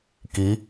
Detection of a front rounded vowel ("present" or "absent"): absent